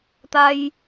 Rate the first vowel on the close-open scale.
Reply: open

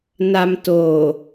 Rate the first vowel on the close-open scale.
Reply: open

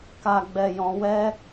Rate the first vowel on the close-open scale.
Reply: open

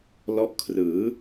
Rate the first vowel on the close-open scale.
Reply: mid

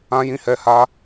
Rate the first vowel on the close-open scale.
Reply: open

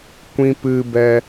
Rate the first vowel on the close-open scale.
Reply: close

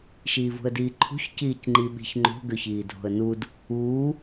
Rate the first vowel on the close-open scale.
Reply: close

